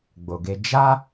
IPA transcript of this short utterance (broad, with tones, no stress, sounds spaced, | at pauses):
ɡ͡b o˨ ɡ e˧ d͡ʒ a˦